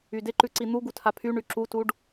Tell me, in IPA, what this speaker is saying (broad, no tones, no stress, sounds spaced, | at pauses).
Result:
y d ɪ ǃ ʉ ǀ i n̪ u ɡ u tʰ a pʰ y ɳ y ǁ u t u ɖ